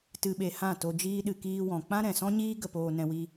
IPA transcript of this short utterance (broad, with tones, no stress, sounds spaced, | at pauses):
t ɨ˧ ɓ e˧ h ã˦˨ t o˧ d͡ʒ iː˦ ɗ ɨ˧ k iː˧ w ɔ̃˨ k͡p ã˦ ɾ ɛ̃˨ s ɔ̃˦ ɲ iː˦ ɡ ə˧ p oː˧ n ɛ̃˧ w i˧